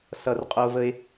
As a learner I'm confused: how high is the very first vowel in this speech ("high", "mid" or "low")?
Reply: mid